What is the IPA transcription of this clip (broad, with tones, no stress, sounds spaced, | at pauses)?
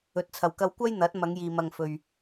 ɵ˨˥ t̚ t͡sʰ ɐ˨ w k ɐ˧ w kʷ ɐ˥ j n̪ ɐ˨˥ t̚ m ɐ˨˧ ŋ j iː˨ m ɐ˨ ŋ f ɵ˨ ɥ